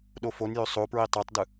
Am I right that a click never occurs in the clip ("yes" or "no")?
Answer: yes